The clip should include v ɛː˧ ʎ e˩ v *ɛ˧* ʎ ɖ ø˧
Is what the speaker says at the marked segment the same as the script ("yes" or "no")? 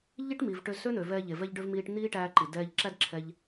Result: yes